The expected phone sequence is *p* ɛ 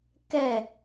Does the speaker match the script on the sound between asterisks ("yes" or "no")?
no